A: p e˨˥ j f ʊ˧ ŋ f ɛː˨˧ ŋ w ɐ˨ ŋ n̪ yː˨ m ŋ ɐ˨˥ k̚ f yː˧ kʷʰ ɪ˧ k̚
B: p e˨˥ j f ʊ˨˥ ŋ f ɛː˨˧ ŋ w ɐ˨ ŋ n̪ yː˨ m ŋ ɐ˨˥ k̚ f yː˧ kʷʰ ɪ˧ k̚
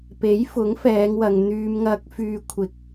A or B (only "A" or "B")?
B